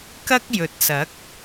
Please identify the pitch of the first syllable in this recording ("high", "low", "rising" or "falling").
high